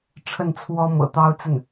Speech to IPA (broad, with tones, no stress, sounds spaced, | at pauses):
ʈ͡ʂʰ ə˥˩ n t͡sʰ w ɔ˥ m ɤ̰˨˩ t̪ ɑ˥ ʊ̯ t͡s ə˥˩ n